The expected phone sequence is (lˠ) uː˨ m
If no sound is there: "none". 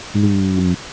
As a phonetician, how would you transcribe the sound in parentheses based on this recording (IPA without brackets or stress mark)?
l